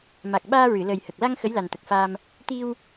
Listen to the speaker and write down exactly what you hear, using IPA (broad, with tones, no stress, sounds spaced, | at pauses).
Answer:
m a˨˩ k̚ ɓ aː˧ ɹ ɨ˨˩˨ l əː˨˩ j h ə˨˩ k̚ l a˧ ŋ x ə˧˥ j l a˨˩ n t̪ ə˨˩ k̚ f aː˧ m | t̪ i˧ w